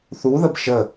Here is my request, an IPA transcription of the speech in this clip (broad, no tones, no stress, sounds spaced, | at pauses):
θ u ð ə b ʃ ə